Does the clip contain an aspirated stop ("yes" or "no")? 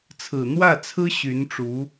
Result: yes